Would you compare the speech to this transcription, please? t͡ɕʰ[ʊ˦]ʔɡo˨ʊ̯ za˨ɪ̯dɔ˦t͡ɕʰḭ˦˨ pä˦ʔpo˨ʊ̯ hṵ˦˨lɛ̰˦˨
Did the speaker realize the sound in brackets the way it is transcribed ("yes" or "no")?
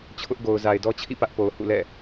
yes